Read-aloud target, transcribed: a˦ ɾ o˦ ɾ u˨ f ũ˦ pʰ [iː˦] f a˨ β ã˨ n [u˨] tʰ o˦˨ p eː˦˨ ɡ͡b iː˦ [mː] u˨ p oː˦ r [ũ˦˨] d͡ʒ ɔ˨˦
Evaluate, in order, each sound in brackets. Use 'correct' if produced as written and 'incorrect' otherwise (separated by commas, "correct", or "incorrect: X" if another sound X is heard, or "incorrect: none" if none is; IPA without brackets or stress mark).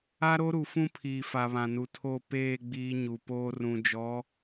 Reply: incorrect: iː˨, correct, incorrect: ɲ, incorrect: ũ˨